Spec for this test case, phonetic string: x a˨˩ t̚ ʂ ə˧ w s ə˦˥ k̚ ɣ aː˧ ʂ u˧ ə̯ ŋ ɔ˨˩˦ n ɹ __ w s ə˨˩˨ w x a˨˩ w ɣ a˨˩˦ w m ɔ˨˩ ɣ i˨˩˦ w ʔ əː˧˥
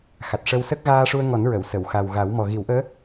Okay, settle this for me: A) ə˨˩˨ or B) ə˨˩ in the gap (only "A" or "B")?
A